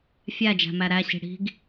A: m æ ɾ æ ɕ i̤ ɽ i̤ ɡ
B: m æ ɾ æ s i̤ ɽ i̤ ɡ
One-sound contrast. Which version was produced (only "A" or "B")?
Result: A